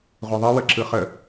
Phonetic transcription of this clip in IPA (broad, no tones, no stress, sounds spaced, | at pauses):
ʁʷ ɯ ðˤ ɯ w ə ǁ ɯ χ ə